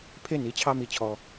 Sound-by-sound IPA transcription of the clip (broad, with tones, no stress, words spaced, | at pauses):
pʰe˦ni˨˦t͡ɕʰɑ˦ mi˧t͡ɕʰɔ˧